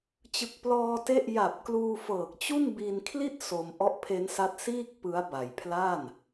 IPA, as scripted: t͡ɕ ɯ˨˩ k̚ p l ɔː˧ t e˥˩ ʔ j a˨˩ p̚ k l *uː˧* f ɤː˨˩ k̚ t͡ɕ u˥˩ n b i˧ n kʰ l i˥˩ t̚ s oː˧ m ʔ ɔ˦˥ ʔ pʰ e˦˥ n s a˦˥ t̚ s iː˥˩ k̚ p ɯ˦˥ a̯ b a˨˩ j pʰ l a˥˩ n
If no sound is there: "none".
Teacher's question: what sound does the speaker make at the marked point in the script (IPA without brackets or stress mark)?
uː˧